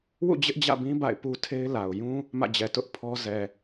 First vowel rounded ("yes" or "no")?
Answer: yes